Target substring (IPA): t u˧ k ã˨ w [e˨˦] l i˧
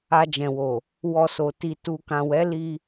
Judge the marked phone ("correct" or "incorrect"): incorrect